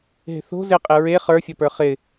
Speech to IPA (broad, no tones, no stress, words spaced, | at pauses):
ɦe̤θo̤ zɪqʼɪ ɹe χə˞fʲɔpə˞ χɪ